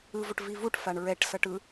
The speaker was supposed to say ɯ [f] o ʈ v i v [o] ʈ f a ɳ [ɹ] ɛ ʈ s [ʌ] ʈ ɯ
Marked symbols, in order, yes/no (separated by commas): no, no, yes, yes